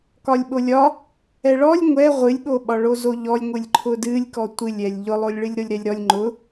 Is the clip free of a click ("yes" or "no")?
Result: no